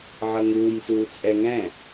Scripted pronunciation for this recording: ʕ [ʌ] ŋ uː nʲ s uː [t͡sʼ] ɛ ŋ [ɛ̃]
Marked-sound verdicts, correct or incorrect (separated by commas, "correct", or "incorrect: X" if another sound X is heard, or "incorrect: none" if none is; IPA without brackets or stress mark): correct, correct, correct